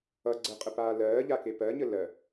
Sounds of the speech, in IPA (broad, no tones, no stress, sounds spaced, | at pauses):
ʌ ɡ͡ǀ ə qʼ ə p aː l ɜː ʎ a k e p ɜ ɲ ə l ɜ